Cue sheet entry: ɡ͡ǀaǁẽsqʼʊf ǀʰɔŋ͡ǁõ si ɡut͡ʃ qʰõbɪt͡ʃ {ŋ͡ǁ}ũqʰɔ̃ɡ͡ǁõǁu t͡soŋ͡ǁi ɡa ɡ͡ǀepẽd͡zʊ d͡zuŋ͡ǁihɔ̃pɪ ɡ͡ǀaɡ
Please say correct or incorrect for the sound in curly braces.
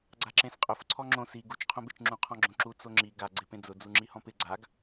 correct